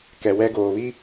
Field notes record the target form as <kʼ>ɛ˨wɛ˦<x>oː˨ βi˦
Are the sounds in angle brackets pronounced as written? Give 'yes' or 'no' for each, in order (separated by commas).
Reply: no, no